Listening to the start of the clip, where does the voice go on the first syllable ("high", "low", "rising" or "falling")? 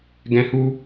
high